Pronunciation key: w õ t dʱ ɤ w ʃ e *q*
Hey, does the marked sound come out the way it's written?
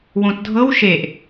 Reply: no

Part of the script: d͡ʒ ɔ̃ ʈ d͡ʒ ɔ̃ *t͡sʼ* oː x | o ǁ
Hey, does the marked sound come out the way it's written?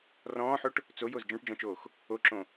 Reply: no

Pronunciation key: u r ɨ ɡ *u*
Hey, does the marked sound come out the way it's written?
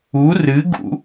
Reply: no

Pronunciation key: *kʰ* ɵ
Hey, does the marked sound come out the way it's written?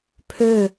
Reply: no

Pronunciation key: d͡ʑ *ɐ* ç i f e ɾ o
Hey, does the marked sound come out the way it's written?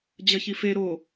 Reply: yes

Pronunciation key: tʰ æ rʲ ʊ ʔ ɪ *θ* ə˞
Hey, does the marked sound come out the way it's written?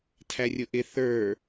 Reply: yes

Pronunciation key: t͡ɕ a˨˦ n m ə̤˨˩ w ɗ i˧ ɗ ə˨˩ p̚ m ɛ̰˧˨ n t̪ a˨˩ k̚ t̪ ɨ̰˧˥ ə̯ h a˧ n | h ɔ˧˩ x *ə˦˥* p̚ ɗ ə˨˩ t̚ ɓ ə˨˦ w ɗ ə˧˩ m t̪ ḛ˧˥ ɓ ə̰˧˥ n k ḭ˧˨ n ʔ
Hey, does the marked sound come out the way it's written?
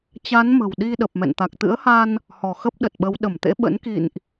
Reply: yes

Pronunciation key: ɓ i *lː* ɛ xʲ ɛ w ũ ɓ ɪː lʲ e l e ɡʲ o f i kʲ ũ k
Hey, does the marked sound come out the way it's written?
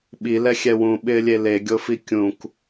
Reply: no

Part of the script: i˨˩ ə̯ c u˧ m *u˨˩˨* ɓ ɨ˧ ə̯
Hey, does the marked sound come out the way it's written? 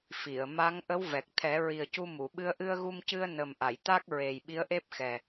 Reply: yes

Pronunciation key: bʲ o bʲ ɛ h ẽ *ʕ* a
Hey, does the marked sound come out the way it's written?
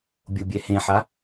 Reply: no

